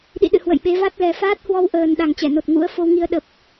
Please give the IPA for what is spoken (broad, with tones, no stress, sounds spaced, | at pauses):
ɗ ḭ˧˨ ɗ ɨ̰˧˨ h w ə̰˧˨ j ɓ e˨˦ v a˦˥ t̚ l ɛ˨˩ f aː˦˥ t̚ h w ɔ˧ w ʔ əː˨˩ n ɗ a˨˩ ŋ t͡ɕ ɛ˧˩ n o˨˩ t̚ ŋ ṵ˧˥ ə̯ f o˧ w ŋ i˧ ə̯ ɗ ə˨˩ p̚